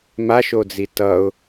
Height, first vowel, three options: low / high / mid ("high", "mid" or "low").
low